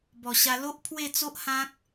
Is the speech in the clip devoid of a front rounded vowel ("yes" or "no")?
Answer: yes